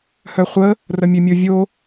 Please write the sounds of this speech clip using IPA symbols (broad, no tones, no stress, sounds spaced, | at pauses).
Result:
h œ χʷ ə | r ə mʲ ø mʲ o vʲ o